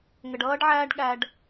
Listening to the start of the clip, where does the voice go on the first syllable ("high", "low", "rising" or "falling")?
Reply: low